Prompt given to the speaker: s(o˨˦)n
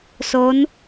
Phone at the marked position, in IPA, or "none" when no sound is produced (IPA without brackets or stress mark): o˨˦